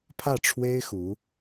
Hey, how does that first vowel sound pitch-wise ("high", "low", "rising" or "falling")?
falling